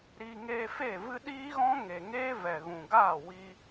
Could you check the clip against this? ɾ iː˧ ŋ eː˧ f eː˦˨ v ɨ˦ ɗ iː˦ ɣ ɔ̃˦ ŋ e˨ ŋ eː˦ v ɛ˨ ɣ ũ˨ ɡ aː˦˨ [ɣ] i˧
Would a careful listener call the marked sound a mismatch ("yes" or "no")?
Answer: yes